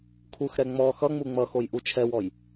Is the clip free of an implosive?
yes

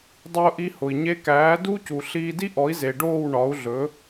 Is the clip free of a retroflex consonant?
no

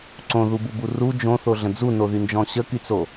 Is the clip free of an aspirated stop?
yes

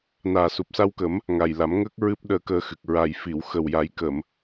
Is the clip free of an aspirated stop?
yes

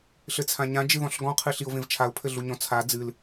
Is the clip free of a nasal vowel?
no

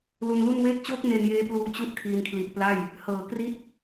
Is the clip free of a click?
yes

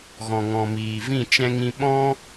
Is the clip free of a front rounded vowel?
yes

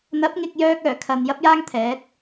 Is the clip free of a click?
yes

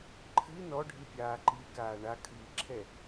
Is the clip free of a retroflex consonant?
no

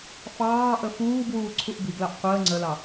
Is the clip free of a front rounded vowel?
yes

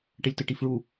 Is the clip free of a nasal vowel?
yes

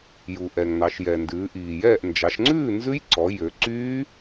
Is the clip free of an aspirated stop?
yes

